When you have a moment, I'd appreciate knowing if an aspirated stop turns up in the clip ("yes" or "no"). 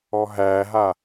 no